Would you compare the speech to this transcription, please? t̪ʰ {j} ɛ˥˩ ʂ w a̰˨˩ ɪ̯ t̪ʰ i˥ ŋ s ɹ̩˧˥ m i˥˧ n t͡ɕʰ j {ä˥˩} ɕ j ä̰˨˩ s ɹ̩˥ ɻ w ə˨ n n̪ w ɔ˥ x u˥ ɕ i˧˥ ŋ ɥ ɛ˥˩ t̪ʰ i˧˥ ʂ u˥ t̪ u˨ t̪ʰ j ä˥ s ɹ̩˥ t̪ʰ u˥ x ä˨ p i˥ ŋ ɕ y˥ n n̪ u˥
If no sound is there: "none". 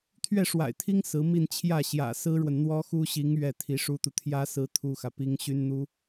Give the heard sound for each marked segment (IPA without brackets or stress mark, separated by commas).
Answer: ɥ, ä˥˩